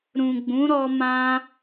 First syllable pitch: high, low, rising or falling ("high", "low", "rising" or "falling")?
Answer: low